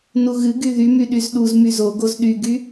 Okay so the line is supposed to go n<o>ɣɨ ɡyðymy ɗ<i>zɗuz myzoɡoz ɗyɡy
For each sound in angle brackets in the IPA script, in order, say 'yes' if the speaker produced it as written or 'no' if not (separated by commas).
no, no